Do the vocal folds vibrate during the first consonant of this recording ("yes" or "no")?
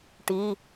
no